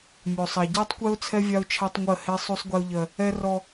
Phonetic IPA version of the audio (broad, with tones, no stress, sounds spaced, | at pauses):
mʲ o˨ sˤ a˨ ɟ ɜ˦ tˤ kʷ ɛ˦ ʊ̯ t͡sʰ ɛ˦ vʲ a˦ ʊ̯ t͡ʃʰ a˦ tˤ ŋʷ ɜ˦˨ h e˦ sˤ u˦ sˤ ɡʷ e˦ ʊ̯ ʎ ɜ˦ | ɛ˦ r ɔ˦